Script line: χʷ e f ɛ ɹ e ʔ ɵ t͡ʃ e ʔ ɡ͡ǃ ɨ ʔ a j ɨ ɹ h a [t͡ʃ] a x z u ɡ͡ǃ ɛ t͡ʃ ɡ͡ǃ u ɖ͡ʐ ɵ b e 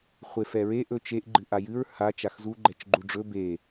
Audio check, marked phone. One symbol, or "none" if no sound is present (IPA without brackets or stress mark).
t͡ʃ